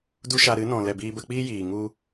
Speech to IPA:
du˦ʃa˧ ɾɨ˨˦nɔ̃˨ lɛ˨biː˧bə˧k͡piː˦ jiː˨ ŋu˧

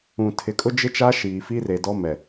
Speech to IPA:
ũ˨ tʰɪ˨kʼʊ˦ d͡ʒɪ˦t͡ʃa˦ ʃiː˨fi˦ re˨ dɔ˦mɛ˨

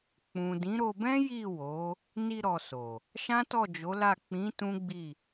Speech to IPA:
k͡pũ˨dĩ˨˦ɾo˧bɛ̃˦ ji˦˨ wo˨˦ | ni˧ɾɔ˨ so˨ | ʃã˦tɔ˦˨d͡ʒo˨˦la˦˨ k͡pĩ˨˦ tũ˦ɡ͡bi˦˨

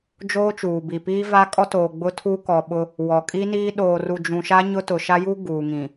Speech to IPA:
d͡ʒoː˦t͡ʃuː˨bi˨piː˦ va˦kʼɔ˦toː˨ ɡ͡bʊ˦tʰu˦ kɔ˨ ɓʊ˦ | wɔ˨kʼi˦niː˦ ɗoː˨ru˨d͡ʒũ˨ʃa˦ ɲʊ˦tʊ˨ ʃa˦ju˦ ɡuː˨ŋĩ˨

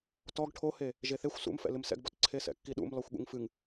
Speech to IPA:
tɔɡ ʈʰohe | ʒeθexʷ sṵmfɛ̰ lɨmsɛ̰ɡbɔt ǀʰesɛ̰kːiɗṵm lɔxʷɠṵŋfɨŋ

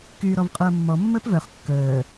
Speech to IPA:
kyːɾɔvqʼoɐ̯mːɔ mːəːpvœχ kːəː

